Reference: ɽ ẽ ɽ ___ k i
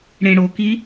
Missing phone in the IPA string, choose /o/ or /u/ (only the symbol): o